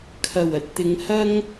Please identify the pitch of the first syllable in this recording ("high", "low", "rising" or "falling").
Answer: low